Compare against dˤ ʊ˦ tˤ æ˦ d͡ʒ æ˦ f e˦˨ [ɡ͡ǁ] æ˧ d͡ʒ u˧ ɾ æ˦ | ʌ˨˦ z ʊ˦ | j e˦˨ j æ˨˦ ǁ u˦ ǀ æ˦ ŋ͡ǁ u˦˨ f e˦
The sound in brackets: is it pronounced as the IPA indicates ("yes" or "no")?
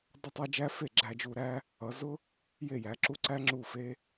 yes